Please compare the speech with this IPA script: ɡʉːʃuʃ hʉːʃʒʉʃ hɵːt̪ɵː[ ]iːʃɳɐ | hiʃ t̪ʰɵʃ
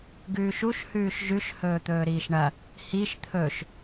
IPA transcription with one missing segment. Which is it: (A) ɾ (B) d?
A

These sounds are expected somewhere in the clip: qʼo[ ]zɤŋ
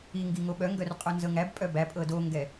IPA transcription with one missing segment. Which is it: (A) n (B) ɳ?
A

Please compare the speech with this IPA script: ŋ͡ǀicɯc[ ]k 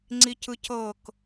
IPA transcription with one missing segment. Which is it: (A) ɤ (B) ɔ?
A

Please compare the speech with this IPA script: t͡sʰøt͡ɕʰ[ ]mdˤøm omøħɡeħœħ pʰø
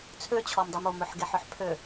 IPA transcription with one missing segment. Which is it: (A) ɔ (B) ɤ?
A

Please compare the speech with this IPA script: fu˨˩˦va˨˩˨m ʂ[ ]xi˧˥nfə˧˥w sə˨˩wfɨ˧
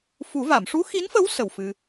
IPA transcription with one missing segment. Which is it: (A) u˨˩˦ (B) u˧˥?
B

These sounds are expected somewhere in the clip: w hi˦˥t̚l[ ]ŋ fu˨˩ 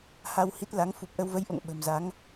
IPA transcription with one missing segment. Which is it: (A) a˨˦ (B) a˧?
A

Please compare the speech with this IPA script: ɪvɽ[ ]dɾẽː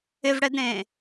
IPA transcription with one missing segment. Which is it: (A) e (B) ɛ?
B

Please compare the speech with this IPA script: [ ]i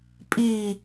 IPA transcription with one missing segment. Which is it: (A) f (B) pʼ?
B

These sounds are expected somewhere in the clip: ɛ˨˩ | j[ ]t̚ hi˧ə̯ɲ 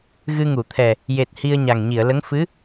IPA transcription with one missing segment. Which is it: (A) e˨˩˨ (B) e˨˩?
B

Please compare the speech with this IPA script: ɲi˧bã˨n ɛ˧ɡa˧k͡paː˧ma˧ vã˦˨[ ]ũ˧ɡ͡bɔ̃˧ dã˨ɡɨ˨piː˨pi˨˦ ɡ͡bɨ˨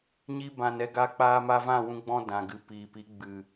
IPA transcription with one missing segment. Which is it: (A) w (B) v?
A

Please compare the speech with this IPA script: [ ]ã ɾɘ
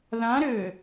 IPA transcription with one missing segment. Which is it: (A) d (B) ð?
B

